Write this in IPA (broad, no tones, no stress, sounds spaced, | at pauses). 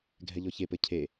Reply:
ɡʱ ɛ ʎ ɔ ç e p ɘ cʰ e